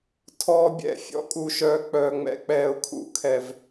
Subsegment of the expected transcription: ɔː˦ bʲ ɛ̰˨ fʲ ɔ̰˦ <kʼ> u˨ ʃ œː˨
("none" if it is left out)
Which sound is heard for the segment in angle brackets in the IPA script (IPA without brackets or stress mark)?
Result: kʼ